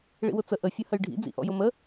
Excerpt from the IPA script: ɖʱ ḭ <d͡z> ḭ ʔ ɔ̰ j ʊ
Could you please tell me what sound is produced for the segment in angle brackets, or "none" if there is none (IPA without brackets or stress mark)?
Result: d͡z